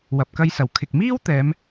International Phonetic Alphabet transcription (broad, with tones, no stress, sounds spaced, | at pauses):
w ɐ˨ p̚ k ɐ˧ j s ɐ˨˩ w kʰ ɪ˨ k̚ m iː˥ w t̪ ɛː˨˧ m